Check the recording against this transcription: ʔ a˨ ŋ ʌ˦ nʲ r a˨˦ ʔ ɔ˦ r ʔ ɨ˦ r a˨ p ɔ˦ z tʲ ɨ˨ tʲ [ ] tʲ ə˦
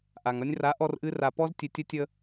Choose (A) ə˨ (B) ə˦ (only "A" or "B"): B